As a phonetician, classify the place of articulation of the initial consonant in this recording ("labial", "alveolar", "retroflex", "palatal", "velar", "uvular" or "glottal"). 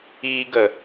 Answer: velar